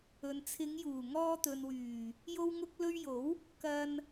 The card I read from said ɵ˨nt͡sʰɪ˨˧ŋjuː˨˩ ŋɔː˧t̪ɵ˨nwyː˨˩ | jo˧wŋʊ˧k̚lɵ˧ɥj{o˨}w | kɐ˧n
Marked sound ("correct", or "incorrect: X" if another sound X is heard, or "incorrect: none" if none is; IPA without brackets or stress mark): incorrect: o˨˥